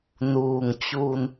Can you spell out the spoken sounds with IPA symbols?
nuː˩ŋ t͡ɕu˩n

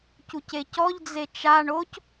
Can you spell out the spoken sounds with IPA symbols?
cucecɔʎ d͡zet͡ʃa ɳoc

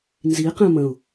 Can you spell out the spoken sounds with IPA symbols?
nziqɛ̃ mə̃ʊ̯

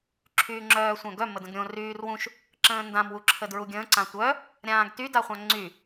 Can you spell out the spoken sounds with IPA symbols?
ǁʰyːŋ͡ǁœːsʷœ̃ɡœ mədə̃ɡɾʲõ ryːrwũʃ | ǁə̃ːndãm wuǁʰədɹuɡʲə̃ː ǀãtʷœ | ɾʲãːɡty daχʷãŋ͡ǀy

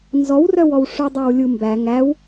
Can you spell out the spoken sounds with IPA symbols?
nzɔwrœwɔw ʂʉdˤæwlʲumbæ ŋæw

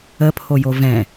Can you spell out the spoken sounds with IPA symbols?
əpʰojo vɛ̃

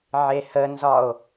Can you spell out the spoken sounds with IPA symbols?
ʕehənzɒo̯

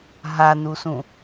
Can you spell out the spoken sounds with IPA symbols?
ɦanusũ

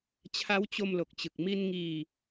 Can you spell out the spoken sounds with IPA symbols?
t͡ɕʰa˦˥wt͡ɕo˧mlo˨˩k̚t͡ɕɯ˨˩k̚ mi˧nŋiː˧

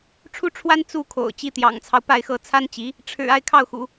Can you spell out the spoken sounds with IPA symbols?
ʈ͡ʂʰu˥ʈ͡ʂʰwa˥n t͡su˥˩kʰo̰˨˩ʊ̯ t͡ɕi˧˥t̪jɑ̰˨˩ŋt͡sʰɑ˦ʊ̯ pa˥˧ɪ̯xɤ˥˩ t͡sʰa˥nt͡ɕi˧˥ | ʈ͡ʂʰɻ̩˨˩ a˥˧ɪ̯kʰɑ˥˩ʊ̯xṵ˨˩˦

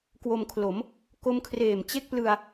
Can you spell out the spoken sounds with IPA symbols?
kwo˧mkʰlo˩˦m | ko˦˥mkʰreː˨˩mt͡ɕe˥˩k̚ plɯ˧a̯

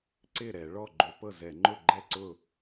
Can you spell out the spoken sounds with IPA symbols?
ǀɪ˥˩ɾɛ˧˩˧ ɭɔ˥˩ ɡ͡ǃʏ˧˩˧pɤ˥˩zɛ˧˩˧ ŋ͡ǃʊ˥˩ɡ͡ǃɛ˥˩ǀʊ˥˩

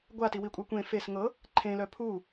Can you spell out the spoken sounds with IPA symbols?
ɡʷatiwikʷʼa kʷẽ fes ŋɤ | ǃʰẽlœ pʰu

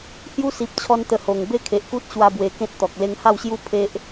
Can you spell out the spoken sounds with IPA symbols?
hju˦si˨p̚t͡ɕʰɔ˧nt̪ə˨˩ ho˨˩ŋ be˥˧kʰe˨ʔku˦t̚ ɕwa˦bwe˧ kẽ˦t̚t̪ɔ˨k̚ le˧ŋha˥˧wɕju˦ pʰe˦ʔ

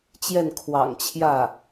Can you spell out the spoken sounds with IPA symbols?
t͡ɕjɛ˥˩nkʰwɑ̰˨˩ŋ t͡ɕʰjä˥˩

